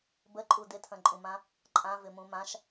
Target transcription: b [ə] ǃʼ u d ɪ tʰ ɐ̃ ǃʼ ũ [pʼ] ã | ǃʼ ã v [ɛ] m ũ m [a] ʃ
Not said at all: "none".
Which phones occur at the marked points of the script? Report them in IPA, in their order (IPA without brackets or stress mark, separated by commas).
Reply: ə, m, ɪ, ã